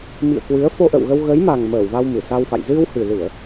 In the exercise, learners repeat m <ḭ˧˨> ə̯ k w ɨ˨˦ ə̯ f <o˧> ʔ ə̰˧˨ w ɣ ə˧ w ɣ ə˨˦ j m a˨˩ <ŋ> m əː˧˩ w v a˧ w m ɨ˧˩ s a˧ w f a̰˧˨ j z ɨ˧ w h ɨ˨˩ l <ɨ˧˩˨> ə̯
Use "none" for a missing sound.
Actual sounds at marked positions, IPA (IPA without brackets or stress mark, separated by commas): ḭ˧˨, o˧, ŋ, ɨ˧˩˨